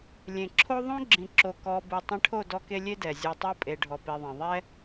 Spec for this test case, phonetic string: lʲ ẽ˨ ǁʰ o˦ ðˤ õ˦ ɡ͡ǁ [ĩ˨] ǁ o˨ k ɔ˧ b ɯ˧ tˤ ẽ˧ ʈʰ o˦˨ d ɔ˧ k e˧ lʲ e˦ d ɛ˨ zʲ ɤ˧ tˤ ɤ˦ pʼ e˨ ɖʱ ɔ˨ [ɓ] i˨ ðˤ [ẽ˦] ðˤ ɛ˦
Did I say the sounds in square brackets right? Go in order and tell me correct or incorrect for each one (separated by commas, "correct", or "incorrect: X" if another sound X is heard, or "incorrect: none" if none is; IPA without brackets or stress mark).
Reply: correct, incorrect: p, incorrect: ẽ˨